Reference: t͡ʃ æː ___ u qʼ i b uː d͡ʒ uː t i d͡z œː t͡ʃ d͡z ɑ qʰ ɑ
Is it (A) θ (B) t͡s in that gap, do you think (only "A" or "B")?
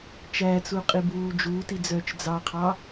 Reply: B